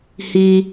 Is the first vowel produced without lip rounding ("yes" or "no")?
yes